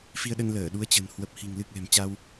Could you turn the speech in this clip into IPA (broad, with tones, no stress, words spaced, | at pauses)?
fi˧ə̯ɗə˧nləː˧˩ ɗu˨˦ə̯t͡ɕə̤˨˩n hwə˨˩p̚hi̤˨˩ŋ lɨ˨˩k̚ lɛ̤˨˩mt͡ɕa˧w